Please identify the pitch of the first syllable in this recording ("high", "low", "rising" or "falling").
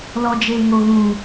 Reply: low